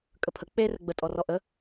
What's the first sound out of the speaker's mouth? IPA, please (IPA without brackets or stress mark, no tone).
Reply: kʼ